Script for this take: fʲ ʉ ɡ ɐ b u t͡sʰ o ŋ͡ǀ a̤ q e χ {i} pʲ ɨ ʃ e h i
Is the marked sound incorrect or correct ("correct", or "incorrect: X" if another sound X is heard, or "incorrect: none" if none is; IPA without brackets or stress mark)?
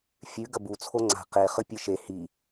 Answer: incorrect: ɨ